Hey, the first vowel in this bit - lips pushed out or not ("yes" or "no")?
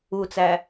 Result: yes